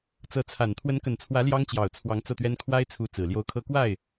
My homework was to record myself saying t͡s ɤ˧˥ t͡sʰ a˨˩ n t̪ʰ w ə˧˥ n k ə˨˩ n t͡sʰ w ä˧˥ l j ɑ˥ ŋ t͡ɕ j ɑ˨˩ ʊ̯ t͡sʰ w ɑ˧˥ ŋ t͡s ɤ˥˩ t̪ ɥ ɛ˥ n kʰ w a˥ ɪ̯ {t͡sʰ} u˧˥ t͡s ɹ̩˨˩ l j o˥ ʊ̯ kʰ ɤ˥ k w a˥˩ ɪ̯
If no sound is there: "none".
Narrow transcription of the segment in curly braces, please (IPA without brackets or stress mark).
t͡sʰ